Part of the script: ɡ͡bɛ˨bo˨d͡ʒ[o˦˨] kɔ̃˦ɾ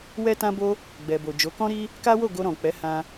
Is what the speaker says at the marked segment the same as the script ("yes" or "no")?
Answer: no